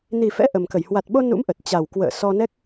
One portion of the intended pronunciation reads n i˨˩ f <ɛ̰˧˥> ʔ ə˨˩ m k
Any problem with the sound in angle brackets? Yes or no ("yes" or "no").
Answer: no